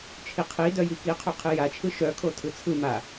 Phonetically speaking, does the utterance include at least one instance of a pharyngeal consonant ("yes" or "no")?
no